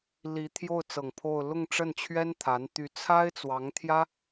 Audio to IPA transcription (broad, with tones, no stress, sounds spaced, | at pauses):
l i˧˥ t̪ʰ j o˥˩ ʊ̯ t͡s ɤ˨˩ ŋ pʰ o˥˧ ʊ̯ l ʊ˥˧ ŋ ʈ͡ʂ ə˥˩ n t͡ɕʰ ɥ ɛ˥ n t̪ʰ a˧˥ n t̪ y˧˥ t͡sʰ a˥ ɪ̯ t͡s w ɑ˧˥ ŋ t̪ʰ j ä˥